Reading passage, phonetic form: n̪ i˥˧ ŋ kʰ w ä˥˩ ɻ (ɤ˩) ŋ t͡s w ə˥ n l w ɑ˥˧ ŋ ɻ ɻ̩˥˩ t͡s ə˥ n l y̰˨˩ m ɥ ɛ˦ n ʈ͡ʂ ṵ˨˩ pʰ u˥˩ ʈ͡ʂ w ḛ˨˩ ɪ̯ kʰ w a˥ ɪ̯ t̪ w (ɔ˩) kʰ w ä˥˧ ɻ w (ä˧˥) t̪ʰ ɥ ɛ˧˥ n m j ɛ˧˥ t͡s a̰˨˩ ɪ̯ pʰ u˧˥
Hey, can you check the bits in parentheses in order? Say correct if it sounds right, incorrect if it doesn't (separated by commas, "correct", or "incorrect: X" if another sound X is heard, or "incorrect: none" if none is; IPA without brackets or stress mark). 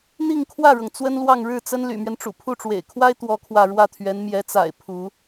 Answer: correct, incorrect: ɔ˥, incorrect: ä˥˩